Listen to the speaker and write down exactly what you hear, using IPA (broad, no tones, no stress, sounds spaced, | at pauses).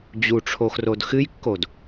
d͡ʑ u ʈ͡ʂʰ o x r o d x ɨ j kː o d